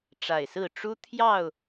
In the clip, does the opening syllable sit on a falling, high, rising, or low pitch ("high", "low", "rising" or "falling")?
low